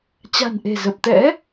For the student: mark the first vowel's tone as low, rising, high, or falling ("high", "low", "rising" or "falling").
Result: low